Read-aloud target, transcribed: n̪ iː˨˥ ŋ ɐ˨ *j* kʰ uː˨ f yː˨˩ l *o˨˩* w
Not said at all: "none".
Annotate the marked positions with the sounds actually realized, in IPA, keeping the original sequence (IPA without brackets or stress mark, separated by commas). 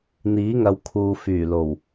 w, o˨˩